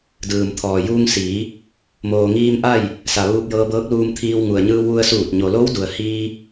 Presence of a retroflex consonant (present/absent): absent